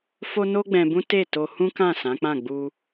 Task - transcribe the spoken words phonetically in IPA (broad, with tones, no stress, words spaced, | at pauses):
fo˦no˦ɡ͡bɛ̃˧ bũ˦ te˦˨ to˧hũ˦kã˦˨ sã˨˦ k͡pã˦˨ɡ͡bu˧